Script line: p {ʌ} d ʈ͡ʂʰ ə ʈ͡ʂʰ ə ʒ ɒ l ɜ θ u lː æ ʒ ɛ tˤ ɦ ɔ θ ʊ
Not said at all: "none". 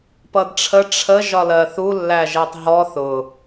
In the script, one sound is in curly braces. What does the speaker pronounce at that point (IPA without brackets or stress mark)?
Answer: ʌ